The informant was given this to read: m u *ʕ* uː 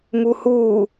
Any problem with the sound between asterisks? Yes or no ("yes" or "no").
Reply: yes